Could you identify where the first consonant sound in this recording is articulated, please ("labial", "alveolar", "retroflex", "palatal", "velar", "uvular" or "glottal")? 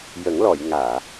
palatal